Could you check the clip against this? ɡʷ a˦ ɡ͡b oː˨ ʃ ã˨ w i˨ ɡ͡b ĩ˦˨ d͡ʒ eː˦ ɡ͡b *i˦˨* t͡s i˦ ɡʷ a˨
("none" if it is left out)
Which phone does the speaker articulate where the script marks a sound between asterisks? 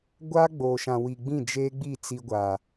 i˦˨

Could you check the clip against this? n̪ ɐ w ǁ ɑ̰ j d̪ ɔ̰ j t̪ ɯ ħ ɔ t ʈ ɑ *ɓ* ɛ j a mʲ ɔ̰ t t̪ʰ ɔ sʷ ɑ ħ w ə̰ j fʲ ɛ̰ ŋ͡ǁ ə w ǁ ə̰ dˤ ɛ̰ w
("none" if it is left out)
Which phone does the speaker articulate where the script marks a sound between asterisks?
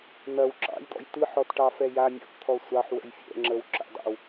f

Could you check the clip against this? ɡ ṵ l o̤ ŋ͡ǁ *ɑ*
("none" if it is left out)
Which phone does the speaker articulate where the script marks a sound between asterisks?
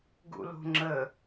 ə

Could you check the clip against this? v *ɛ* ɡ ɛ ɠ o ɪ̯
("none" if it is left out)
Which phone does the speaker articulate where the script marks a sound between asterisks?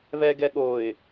ɛ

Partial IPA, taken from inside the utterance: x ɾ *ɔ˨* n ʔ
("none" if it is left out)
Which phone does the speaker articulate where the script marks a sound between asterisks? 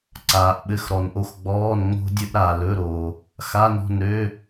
ɔ˨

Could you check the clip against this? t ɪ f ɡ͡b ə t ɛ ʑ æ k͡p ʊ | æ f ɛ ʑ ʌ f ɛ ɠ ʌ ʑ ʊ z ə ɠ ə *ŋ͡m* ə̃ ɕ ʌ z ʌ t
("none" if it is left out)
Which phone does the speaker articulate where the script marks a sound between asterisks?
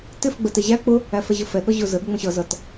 ŋ͡m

